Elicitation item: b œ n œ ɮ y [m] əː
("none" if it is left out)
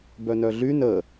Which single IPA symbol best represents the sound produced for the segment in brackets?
n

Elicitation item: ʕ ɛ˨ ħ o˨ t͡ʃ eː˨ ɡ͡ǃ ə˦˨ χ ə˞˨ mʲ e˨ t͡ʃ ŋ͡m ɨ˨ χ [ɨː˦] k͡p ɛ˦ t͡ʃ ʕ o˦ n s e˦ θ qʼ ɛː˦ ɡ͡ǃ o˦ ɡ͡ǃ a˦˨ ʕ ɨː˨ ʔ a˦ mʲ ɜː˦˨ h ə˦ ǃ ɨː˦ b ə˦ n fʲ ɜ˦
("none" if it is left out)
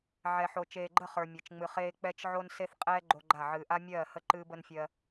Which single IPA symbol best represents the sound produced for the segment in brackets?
eː˦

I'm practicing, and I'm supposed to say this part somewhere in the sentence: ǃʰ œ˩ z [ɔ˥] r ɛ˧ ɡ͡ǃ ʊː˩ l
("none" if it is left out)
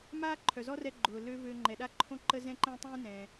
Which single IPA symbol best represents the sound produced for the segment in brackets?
ɔ˥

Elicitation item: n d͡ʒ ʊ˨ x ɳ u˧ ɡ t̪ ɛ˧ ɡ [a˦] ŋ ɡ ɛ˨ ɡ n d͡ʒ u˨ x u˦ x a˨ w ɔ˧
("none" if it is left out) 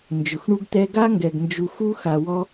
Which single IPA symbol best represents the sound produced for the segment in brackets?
a˦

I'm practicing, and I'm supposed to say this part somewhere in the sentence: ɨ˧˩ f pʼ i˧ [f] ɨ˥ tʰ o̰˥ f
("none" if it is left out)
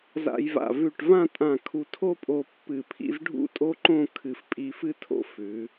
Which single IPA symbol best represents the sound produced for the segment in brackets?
f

